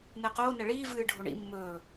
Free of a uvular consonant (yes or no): no